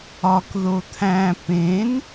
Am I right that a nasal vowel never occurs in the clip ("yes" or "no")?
no